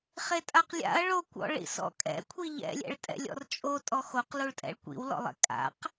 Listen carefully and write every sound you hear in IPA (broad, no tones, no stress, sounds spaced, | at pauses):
χ e tʼ a q lʲ a̰ ɐ̯ ɭ o kʷ ɔ̰ ɭ ḭ s ɔ̰ kʼ ɛ̰ kʷʰ i ʎ ɛ̰ lʲ ɛ̰ ɭ tʼ ɛ̰ lʲ ɔ̰ r t͡ʃʼ o tʼ ɔ x o q l u ɭ tʼ ɛ̰ ɭ kʷ ḭ w l ɔ̰ lˠ ɛ̰ kʼ a̰ q